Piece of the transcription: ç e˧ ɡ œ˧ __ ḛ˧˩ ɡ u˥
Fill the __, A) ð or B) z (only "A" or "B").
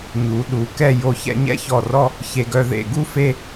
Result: A